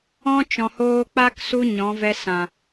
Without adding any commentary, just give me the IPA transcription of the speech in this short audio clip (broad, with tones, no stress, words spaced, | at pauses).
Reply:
ɔ̃˦t͡ʃɔ̃˨ hoː˧k͡pa˦k su˦ɲɔ̃˨˦ vɛ˧sã˨